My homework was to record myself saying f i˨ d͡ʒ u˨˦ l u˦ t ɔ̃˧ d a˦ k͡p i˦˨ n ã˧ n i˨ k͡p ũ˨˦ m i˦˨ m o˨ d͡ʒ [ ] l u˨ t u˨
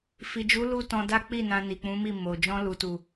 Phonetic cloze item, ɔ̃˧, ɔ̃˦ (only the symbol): ɔ̃˧